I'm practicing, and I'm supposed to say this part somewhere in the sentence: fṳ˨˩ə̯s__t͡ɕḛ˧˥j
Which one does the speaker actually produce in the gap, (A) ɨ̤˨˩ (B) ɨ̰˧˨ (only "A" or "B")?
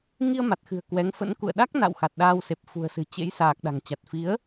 A